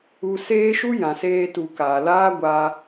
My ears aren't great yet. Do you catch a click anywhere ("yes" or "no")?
no